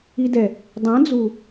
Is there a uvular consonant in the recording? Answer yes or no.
no